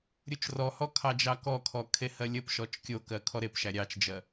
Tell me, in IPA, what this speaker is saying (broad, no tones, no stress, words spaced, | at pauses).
ɾʲut͡ʃrɔhɔ kʰɑd͡ʒɑkɔkʰɔ kʰehɜlʲəpʃɔt͡ʃ kʲokɜ kʰɔɾepʃæ ɾʲɑt͡ʃd͡ʒɜ